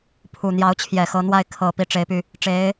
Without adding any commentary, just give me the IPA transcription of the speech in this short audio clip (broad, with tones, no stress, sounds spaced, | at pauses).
pʰ u˨˩ n̪ j ɑ˧˥ ʊ̯ t͡ɕʰ j ɛ˨˩ x ɤ˧˥ n̪ w a˥˩ ɪ̯ kʰ ɤ˨˩ p i˥˩ ʈ͡ʂ e˧˥ ɪ̯ p y˧ | ʈ͡ʂ e˧˥ ɪ̯